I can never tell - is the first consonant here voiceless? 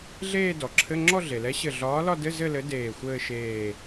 no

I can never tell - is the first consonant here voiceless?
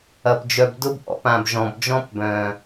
yes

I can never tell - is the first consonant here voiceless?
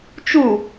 yes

